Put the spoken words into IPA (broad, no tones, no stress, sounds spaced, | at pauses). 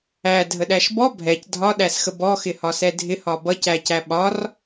æ dʱ ə ɗ æ ʃ b ɔ bʱ ɛ c dʱ ɒ ɗ æ s x ə b ɔ x ɪ h ɒ s ɛ dʱ ɪ h ɒ b ʌ c æ c æ ɓ ɒ r